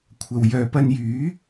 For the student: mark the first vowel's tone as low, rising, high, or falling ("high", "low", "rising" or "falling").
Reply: low